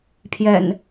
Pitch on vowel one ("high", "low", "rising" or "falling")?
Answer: low